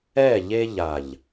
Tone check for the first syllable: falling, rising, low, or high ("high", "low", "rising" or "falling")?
falling